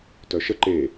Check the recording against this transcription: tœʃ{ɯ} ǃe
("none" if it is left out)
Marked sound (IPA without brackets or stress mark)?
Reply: ə